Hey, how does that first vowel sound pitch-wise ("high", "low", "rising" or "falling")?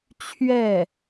falling